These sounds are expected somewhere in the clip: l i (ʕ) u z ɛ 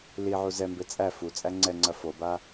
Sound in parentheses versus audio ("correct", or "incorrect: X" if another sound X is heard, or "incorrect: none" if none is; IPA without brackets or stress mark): correct